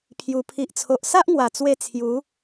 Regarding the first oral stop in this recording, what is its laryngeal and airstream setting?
aspirated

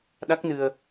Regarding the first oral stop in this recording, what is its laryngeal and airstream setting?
implosive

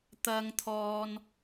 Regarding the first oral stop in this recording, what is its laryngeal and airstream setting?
plain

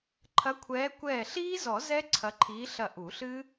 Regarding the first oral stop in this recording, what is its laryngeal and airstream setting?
click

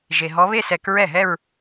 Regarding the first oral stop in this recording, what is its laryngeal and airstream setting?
plain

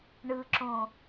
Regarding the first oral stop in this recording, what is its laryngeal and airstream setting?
click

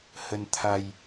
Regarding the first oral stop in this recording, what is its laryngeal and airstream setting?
aspirated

